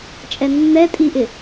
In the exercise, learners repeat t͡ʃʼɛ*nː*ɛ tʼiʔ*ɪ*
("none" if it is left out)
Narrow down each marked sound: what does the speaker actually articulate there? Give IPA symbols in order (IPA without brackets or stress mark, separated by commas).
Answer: nː, ɪ